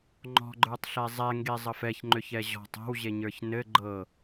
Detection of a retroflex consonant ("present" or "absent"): absent